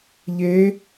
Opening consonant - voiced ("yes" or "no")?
yes